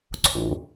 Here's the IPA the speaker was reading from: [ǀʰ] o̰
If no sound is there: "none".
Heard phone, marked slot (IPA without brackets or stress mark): ǀʰ